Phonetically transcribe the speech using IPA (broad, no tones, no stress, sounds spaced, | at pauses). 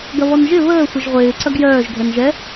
ɡ ɐ β ɔ n ʒ ɪ β əː sʷ ɪ ʒ ʁʷ ɪː ǀ ɐ ɡ j œː ʒ ɡʱ ɛ n ʒ ɛ